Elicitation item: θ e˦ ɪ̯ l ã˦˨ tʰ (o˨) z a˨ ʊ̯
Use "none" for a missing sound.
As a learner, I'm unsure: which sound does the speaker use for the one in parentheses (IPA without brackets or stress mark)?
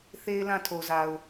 o˨